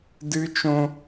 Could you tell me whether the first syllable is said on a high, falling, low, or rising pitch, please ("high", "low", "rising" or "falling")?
high